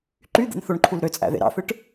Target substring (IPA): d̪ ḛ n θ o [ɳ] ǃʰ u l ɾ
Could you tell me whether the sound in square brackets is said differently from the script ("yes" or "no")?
no